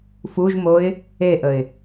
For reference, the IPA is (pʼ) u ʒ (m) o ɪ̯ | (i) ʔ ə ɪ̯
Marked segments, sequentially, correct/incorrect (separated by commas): incorrect, correct, incorrect